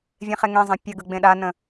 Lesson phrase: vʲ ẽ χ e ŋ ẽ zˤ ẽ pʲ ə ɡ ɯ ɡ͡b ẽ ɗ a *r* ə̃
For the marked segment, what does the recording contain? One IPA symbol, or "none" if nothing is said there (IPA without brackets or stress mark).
n